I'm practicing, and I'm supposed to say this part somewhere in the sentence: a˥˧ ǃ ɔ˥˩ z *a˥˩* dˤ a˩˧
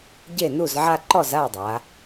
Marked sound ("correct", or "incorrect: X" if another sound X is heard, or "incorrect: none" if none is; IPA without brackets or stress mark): correct